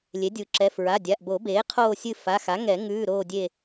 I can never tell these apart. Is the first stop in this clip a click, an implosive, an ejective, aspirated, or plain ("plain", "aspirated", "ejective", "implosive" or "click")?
plain